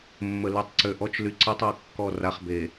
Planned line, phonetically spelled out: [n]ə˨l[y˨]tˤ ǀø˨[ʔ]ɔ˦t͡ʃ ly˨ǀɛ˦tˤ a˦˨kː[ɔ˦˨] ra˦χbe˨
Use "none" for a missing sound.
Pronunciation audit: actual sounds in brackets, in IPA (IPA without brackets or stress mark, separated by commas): mː, y˨, ʔ, ɔ˦˨